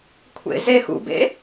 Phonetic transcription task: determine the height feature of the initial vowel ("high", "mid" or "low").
mid